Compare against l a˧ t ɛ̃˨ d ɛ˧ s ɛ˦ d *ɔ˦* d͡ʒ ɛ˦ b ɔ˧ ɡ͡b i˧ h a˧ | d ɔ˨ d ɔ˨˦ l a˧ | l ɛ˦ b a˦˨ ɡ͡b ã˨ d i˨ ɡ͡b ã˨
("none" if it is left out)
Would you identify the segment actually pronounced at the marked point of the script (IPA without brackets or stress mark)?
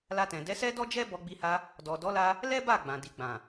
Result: ɔ˦